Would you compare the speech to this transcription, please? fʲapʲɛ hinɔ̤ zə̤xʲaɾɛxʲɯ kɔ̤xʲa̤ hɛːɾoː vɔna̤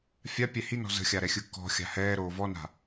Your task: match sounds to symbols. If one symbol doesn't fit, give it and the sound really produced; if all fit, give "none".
none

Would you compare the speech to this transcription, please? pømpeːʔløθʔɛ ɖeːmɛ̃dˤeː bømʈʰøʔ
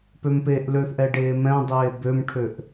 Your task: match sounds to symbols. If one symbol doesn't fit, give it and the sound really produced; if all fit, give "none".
none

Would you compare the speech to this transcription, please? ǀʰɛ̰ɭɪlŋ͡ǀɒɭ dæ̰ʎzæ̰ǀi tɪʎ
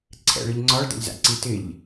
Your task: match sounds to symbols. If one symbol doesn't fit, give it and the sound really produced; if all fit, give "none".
l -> ʎ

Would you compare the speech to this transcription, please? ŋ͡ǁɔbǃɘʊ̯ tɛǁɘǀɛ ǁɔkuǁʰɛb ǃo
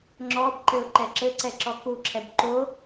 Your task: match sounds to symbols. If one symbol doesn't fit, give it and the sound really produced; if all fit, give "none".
t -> ǃ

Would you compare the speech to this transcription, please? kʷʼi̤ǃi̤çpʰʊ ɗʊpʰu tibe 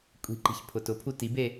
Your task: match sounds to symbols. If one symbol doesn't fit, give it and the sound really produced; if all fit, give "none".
ɗ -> t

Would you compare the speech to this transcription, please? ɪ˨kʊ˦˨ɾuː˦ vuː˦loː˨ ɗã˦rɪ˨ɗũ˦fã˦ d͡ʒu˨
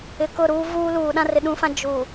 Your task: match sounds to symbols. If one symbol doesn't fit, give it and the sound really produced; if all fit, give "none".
oː˨ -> uː˨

